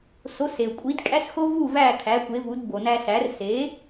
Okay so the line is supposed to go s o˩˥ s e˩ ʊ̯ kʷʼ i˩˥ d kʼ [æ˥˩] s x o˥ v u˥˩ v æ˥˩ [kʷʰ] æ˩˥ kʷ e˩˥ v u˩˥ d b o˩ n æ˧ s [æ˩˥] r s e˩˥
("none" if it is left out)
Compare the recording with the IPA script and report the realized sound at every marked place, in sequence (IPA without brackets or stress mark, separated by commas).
æ˥, kʰ, æ˩˥